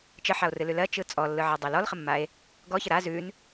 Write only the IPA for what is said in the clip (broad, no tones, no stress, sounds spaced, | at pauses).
t͡ʃ ə ħ a o̯ r ɨ l ʉ l ɜ t͡ʃ ɯ t͡sʼ ɔ lː ɯ ʕ a dˤ ɜ l ɔ l χ ə mː a e̯ | ɡ ɔ ç ə ɾ a z ʉ n